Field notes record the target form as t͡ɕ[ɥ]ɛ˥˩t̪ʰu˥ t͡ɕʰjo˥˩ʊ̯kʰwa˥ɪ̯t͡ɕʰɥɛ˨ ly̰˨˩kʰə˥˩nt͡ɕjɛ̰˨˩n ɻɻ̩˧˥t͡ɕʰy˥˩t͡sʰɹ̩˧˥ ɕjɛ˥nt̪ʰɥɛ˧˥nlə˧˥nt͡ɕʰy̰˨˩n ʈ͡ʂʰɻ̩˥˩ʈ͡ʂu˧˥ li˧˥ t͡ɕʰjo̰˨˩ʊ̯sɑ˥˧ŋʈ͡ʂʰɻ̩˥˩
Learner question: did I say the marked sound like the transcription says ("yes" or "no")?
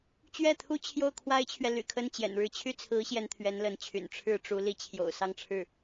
yes